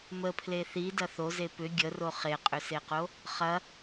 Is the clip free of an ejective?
no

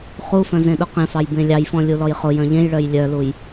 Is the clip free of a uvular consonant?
no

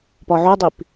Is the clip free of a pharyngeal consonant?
no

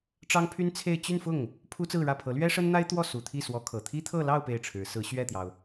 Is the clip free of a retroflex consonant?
no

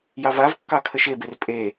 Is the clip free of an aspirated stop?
no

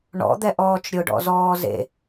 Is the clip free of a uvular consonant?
yes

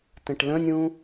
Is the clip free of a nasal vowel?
no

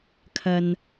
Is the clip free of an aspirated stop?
no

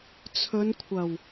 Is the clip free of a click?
yes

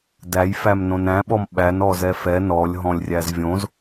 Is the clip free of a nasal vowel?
no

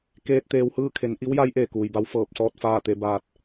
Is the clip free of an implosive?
yes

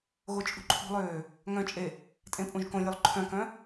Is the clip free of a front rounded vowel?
no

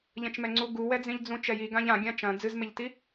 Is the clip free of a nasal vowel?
no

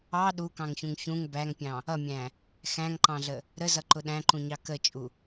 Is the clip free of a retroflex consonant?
yes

